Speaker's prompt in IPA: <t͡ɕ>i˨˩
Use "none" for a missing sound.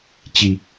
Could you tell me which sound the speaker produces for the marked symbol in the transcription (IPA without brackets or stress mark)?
t͡ɕ